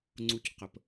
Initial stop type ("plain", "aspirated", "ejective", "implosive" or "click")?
click